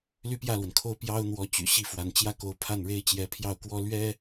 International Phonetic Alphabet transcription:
ly˥˧pjä˥˩lwə˩nkʰo˥˩ʊ̯ pjɑ˥ʊ̯ n̪wɔ˧˥t͡ɕy̰˨˩ ɕi˥˩fwa˧˥n t͡ɕjä˥˩ko˧˥ʊ̯ pʰa˥˩nɻe˥ɪ̯ t͡ɕjɛ˧˥pʰjɑ˥˩ʊ̯kwɔ˥ lɥɛ˥

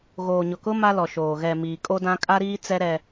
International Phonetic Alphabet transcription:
ɣoː˨ɲʊ˨kʊ˦ ma˦lɔ˨ʃoː˨ ɣɛ˨ miː˨kʼo˦dã˦ kʼa˦ɾiː˦t͡sɛ˦ɾɛ˦

